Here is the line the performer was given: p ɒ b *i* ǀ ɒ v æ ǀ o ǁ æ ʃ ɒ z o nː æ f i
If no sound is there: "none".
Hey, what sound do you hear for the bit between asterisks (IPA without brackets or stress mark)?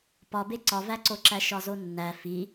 e